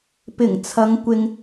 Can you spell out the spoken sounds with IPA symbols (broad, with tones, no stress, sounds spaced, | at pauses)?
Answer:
p ɪ˨˩ ŋ t͡sʰ ɐ˨˧ ŋ kʷ ɪ˧ ŋ